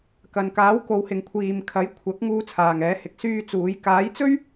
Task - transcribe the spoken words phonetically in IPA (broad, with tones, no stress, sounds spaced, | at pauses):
k ɐ˨ n k aː˨˥ w k o˨˧ w h ɪ˨ ŋ kʷʰ iː˨ m kʰ ɐ˨˥ j kʷʰ ɐ˨˥ k̚ ŋ uː˧ t͡sʰ aː˨ ŋ ɛː˨˥ h ɪ˨˥ k̚ s yː˧ t͡s uː˨˧ j k aː˨˥ j t͡s ɵ˥ ɥ